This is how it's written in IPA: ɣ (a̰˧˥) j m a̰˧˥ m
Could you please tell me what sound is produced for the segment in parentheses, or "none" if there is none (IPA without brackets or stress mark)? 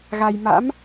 a˧